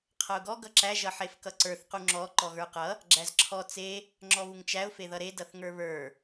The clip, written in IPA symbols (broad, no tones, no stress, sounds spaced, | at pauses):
qʰ ʌ ʊ̯ ɡ ɔ ɡ ʌ ǁ æ ʒ ʌ ħ e f k ʌ ǀ ə˞ θ q u ŋ͡ǁ ɔ ǃ ɔ ɣ ə˞ q ʌ | ɡ͡ǁ æ z ǁʰ ɔ t͡s e | ŋ͡ǁ ɔ β u ŋ t͡ʃ æ ʊ̯ f e ð ʌ ɾ e d ʌ θ ŋ ə˞ β ə˞